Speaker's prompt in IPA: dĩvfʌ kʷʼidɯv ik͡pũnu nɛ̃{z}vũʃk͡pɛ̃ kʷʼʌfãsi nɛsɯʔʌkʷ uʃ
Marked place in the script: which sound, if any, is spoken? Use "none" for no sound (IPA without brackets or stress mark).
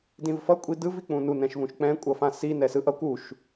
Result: ʃ